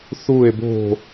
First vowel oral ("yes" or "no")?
yes